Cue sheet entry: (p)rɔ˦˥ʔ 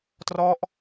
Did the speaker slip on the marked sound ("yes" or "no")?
yes